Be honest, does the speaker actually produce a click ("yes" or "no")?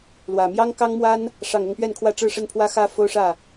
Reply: no